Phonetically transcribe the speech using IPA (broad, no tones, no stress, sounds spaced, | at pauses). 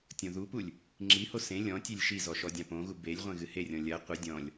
tʲ õ ð u p u lʲ | ŋ͡ǁ i h o s ẽ lʲ ɔ̃ tʲ e lʲ ʃ i z ɔ ʃ ɔ dʲ ã p õ ɣ u b e lʲ ʁʷ ẽ ɣ ɨ h e rʲ ɔ̃ lʲ ɐ qʷ e dʲ ɔ̃ lʲ